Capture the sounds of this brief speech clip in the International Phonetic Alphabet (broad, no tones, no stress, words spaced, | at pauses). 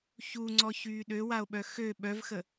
çuŋ͡ǀɔ çyːɗøwao̯ɓœ xø ɓœvxə